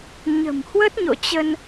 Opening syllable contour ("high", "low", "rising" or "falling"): low